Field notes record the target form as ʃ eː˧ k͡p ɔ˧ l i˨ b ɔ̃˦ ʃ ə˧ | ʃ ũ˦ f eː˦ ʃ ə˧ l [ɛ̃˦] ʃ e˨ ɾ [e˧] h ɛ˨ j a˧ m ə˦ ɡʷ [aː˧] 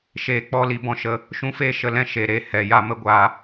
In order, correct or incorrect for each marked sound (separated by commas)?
correct, correct, correct